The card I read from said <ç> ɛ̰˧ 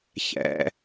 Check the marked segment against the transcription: correct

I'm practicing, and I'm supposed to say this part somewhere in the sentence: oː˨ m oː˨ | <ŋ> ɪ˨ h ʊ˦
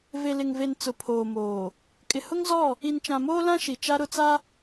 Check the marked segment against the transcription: incorrect: kʼ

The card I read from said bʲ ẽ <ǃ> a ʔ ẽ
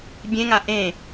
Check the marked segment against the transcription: incorrect: ŋ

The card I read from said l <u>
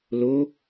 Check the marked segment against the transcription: incorrect: o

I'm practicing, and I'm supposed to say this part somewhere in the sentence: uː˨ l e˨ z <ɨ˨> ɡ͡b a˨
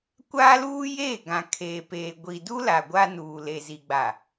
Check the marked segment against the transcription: incorrect: i˨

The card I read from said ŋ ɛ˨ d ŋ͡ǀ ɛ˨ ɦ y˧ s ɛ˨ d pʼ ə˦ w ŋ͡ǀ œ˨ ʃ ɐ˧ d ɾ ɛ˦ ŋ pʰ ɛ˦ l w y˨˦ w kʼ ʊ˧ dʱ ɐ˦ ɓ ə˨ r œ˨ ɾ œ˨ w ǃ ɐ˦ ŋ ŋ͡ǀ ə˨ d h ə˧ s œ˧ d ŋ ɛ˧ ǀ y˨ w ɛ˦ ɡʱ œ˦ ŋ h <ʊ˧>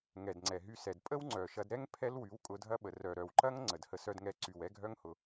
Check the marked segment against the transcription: correct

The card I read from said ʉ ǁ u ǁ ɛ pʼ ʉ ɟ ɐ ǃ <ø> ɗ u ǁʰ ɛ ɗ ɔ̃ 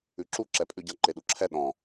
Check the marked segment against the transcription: incorrect: e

